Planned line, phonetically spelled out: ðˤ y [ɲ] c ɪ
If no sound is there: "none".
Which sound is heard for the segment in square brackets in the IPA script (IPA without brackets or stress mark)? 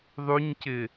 ɲ